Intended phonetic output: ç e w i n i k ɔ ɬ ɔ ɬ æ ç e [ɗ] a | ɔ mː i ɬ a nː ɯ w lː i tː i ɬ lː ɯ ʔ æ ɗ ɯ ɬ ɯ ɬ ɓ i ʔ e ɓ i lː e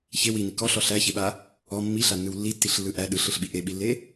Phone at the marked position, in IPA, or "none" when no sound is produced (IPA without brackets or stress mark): ɓ